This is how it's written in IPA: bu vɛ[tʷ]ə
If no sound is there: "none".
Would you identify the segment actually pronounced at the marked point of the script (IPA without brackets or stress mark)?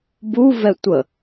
tʷ